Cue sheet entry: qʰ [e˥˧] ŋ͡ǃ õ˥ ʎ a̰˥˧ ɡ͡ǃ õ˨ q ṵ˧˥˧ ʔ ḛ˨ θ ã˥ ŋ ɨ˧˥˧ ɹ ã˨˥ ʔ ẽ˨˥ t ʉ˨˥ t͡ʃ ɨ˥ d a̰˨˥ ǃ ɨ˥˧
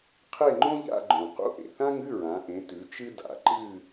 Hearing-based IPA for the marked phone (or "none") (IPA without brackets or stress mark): e˥˧